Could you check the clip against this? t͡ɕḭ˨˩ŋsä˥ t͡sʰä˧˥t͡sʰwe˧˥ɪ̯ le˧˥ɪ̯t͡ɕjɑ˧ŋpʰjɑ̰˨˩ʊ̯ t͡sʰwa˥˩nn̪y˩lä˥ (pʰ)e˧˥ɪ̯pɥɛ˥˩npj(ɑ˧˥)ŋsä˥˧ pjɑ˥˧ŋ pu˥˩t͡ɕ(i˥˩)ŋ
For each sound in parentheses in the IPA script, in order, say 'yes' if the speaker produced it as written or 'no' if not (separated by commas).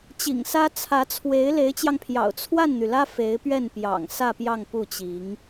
no, no, no